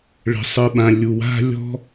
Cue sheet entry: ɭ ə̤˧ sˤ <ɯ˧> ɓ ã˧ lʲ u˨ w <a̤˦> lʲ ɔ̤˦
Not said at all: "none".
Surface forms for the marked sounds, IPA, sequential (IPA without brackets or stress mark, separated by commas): ɯ˧, a̤˦